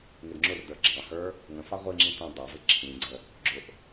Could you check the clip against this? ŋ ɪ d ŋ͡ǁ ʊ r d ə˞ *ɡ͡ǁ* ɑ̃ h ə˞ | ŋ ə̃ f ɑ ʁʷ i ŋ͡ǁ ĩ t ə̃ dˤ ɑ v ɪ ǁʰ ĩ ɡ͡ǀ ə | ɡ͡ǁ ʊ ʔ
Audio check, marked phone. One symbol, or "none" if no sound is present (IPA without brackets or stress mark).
ɡ͡ǁ